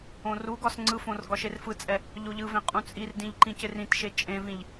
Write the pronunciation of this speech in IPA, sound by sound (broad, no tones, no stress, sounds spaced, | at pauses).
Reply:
õ r u ɡ ɒ s ŋ͡ǀ ɯ f õ r ɡ ɒ ʃ e r f ɯ t͡sʼ ɛ | ʎ o ʎ ɯ v ẽ qʼ ũ t͡sʼ i r d ĩ ʎ ǃ ĩ c ɪ r ĩ t ʃ e t͡ʃʼ ẽ v ĩ ʎ